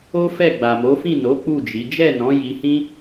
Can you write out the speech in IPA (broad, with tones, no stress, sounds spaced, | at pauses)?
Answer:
o˦ f ɛ˦˨ ɡ͡b a˨ m o˨˦ f ĩ˦˨ n o˨˦ k͡p u˦˨ d͡ʒ i˨˦ d͡ʒ ɛ˦˨ n ɔ̃˨˦ j i˧ h ĩ˦